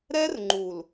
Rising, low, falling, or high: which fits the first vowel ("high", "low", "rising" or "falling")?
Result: high